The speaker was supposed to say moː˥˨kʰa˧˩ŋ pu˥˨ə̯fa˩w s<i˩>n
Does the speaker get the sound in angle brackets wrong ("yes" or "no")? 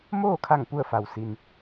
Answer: no